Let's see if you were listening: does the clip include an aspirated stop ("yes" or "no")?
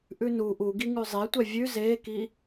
no